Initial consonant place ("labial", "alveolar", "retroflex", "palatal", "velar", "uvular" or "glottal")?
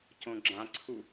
palatal